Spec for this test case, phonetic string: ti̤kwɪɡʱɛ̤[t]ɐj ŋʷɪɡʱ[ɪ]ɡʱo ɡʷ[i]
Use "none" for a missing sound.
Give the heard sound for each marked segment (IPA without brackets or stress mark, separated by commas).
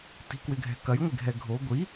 k, ɛ, i